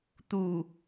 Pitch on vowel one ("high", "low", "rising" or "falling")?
low